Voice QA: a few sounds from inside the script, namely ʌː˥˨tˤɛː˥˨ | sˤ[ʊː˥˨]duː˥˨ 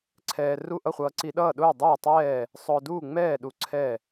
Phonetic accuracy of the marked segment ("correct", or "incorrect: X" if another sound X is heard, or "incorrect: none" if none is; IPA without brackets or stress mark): incorrect: ʊː˧